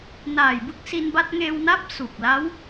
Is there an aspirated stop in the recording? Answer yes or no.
no